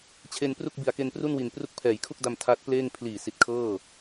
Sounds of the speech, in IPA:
t͡ɕʰ e˧ n p r u˥˩ k̚ b i˨˩ a̯ k e˧ n p r u˥˩ n w i˨˩ n p r u˦˥ k̚ pʰ ɛː˩˦ j kʰ u˥˩ k̚ d a˧ m tʰ a˦˥ t̚ p l eː˥˩ ŋ pʰ l iː˨˩ s i˨˩ t̚ kʰ ɤː˥˩

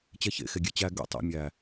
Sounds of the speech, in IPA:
t͡ɕ ɛ ç ḛ x e ɡʲ e t͡ɕ æ ɡ ɛ̰ tˤ ɛ̰ mʲ æ

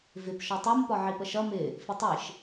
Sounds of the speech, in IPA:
v ɪ p ʃ ɒ tˤ ɜ m p ɒ ʕ i p ə ʃ ʌ m ɪ | f ɪ tˤ i ʃ

